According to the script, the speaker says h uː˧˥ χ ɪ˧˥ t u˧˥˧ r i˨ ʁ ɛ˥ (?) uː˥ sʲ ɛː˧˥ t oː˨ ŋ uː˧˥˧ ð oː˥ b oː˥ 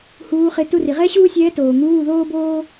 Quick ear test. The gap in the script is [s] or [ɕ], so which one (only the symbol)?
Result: ɕ